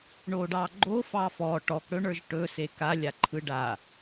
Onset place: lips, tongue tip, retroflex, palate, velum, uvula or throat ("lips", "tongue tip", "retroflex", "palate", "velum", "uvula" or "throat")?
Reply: retroflex